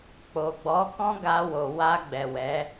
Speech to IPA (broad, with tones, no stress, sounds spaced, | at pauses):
k͡p o˨ ɡ͡b ɔ˨˦ k ɔ̃˦ ɡ a˧ w o˨ w a˧ ɡ͡b ɛ˨ w ɛ˨˦